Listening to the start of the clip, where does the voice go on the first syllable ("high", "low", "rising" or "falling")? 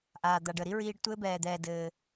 low